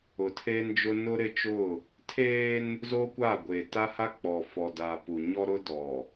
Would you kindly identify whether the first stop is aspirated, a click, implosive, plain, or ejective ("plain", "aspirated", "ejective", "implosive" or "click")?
aspirated